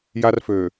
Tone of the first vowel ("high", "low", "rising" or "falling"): high